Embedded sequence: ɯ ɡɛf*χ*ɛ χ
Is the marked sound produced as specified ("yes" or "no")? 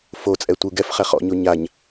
yes